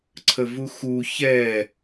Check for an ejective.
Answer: absent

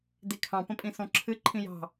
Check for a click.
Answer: present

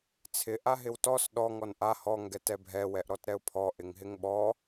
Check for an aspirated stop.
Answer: present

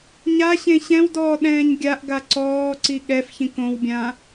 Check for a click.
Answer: present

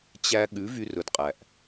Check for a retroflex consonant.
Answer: absent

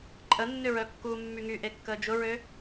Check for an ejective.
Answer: present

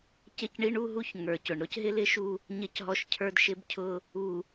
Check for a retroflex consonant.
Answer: present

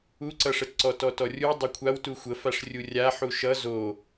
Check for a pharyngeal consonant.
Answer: present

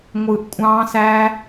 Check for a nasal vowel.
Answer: present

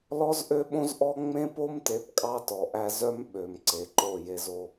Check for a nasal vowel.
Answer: present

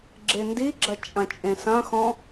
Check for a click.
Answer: present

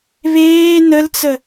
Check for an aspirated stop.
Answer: absent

